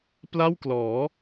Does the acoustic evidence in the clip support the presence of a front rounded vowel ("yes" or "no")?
no